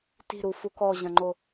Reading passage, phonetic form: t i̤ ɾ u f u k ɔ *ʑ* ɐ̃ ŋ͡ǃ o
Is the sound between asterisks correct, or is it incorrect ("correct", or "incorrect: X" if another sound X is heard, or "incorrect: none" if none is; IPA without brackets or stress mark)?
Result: correct